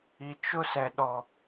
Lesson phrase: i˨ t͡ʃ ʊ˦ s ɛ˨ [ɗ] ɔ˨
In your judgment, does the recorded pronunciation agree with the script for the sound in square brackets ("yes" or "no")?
yes